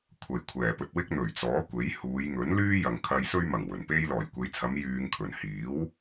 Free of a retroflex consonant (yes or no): yes